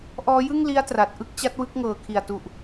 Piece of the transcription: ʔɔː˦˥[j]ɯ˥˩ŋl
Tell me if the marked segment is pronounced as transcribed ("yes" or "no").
yes